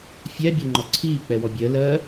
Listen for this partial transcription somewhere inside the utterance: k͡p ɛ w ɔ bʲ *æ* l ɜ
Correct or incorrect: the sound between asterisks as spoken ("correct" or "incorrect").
incorrect